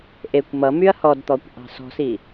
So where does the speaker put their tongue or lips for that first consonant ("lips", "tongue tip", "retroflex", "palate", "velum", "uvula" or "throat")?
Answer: throat